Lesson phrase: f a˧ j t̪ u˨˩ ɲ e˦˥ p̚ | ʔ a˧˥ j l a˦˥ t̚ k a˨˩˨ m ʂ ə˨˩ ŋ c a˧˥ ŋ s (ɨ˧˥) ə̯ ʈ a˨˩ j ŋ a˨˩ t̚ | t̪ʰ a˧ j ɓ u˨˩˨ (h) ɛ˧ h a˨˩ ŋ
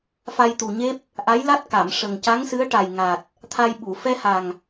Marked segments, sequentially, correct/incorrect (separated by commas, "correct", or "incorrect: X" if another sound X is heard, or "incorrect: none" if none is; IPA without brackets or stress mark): correct, incorrect: f